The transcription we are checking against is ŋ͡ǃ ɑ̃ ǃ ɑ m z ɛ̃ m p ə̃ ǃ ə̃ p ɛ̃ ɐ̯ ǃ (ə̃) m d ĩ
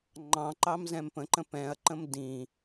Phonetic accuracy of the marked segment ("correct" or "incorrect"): correct